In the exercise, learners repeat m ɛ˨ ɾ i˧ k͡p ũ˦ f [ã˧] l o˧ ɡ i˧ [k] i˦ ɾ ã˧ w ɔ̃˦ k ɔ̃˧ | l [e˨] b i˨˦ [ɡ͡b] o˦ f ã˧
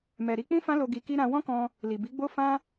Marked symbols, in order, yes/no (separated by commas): no, yes, no, yes